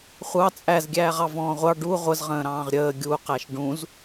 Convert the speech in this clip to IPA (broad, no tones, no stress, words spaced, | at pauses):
χʷɑ t͡sʼæzɡʲæːʁɑ vɔ̃ːʁʷɑ ɖu ʁʷəzʁə̃ːɾɑ̃ːʁ ɾʲəː ɡʲuqæʃ ɖũz